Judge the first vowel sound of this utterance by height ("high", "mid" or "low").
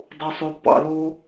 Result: high